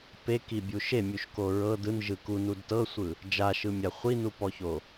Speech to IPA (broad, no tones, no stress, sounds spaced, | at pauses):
p e k i bʲ u ʃ e mʲ u ʃ k o ɹ ɤ d ɯ n ʒ ɯ k u n u d t ɤ sʷ ɯ | d͡ʒ a ʃ ɯ mʲ a χʷ i n u p ɔ ç o